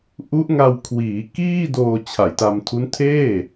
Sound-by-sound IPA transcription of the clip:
ʔ u˦˥ ʔ ŋ a˧ w kʰ w iː˩˦ k iː˥˩ d oː˧ t͡ɕʰ a˨˩ j t a˧ m tʰ u˦˥ n tʰ eː˥˩

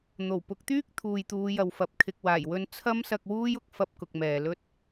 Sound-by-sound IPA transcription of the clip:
n̪ o˨˩ w p ʊ˨˥ k̚ t̪ yː˥ k̚ t̪ʰ uː˨ j t̪ uː˨˧ j ɐ˨ w f ɐ˨ p̚ kʰ ɪ˨ k̚ w aː˨˩ j w ɵ˧ n t͡sʰ ɐ˥ m s ɐ˧ k̚ w uː˥ j ʊ˨ k̚ f ɐ˧ p̚ k ʊ˨ k̚ m ɛː˨ l ɵ˥ t̚

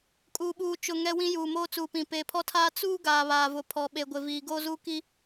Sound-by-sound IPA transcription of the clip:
kʼ uː˨ ɓ uː˨ t͡ʃ ʊ˨ ŋ ɛ˦ w ĩ˦ j uː˨ m oː˦ t͡s uː˨ p ĩ˨ p eː˨ pʰ ɔ˦ tʰ aː˦ t͡s uː˦ ɡ aː˨ β aː˨ v ʊ˨ pʰ ɔ˨ ɓ e˨ ɡʷ ɪ˨ v iː˨ ɡ oː˦ z uː˦ k i˦

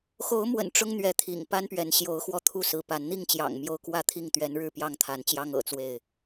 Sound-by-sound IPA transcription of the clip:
x o˨˦ ʊ̯ m w ə̰˨˩ n ʈ͡ʂ ʊ˦ ŋ n̪ ɥ ɛ˨˦ t̪ʰ ḭ˨˩ ŋ p a˦ n p ɥ ɛ˨˦ n ɕ j o˨˦ ʊ̯ x w ɔ˦ t̪ʰ u˥˨ s ɹ̩˨˦ p a˨˦ n n̪ i˥˨ ŋ t͡ɕ j ɑ̰˨˩ ŋ m j o˦ ʊ̯ k w ä˥˨ t̪ʰ i˥˨ ŋ t̪ ɥ ɛ˨˦ n ɻ ɻ̩˥˨ p j ɑ˥˨ ŋ t̪ʰ a˨˦ n t͡ɕ j ɑ˦ ŋ ɤ̰˨˩ t͡s w e˥˨ ɪ̯

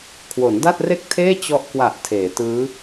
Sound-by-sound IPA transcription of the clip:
kʰ w o˩˦ n d a˥˩ t̚ r e˥˩ k̚ tʰ eː˥˩ t͡ɕ ɔ˦˥ ʔ k w a˨˩ ʔ tʰ eː˩˦ t ɯː˦˥

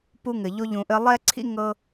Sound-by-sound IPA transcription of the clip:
p u˦ ŋ ɘ˨ ʎ o˧ ʎ ũ˨ ʔ ɘ˧ lˠ ɛ˦ ǀʰ ḭ˦ ŋ ɤ˦

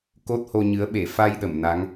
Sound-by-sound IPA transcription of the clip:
k o˦˥ t̚ h o˧ ɲ ɨ˨˦ ə̯ ɓ e˧˩ f a˧ j ɗ ə˧˩ m n a˨˦ ŋ

